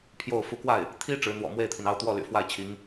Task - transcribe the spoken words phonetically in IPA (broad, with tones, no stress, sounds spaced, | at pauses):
pʰ j o˥˩ ʊ̯ f u˧˥ k w a˥˩ ɪ̯ | t̪ʰ i˥ ʈ͡ʂ ɻ̩˧˥ n̪ w ɔ̰˨˩ m w e˥˩ ɪ̯ t̪ʰ i˩ n ɑ˥˧ ʊ̯ t̪ w ɔ˥˩ l y̰˨˩ f w a˥˩ ɪ̯ t͡ɕʰ i˧˥ ŋ